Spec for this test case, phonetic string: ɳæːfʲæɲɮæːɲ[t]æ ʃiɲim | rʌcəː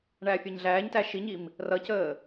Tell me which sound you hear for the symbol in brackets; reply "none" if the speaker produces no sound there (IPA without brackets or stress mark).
t